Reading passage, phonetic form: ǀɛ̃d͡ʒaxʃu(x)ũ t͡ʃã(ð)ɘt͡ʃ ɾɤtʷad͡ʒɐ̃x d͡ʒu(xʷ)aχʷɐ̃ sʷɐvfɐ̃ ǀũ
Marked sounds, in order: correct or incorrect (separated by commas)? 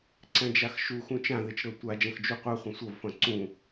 correct, correct, incorrect